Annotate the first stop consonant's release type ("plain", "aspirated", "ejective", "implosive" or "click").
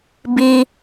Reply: plain